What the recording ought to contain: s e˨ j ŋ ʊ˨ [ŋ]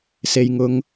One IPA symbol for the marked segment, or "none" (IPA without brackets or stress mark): ŋ